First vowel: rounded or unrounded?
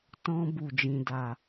rounded